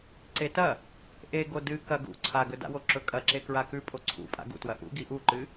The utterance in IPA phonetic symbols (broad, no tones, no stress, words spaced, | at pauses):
ǀetɐ | ʔe ɡodɨ kɐ ɡṵ ǀʰaɡɵda̰wo ǁɵkʼɐǁe kɹakʉ pʼoǀʰṵpʼa̰ ɡṵtwɐ ʔṵ ɡiʔuǃɨ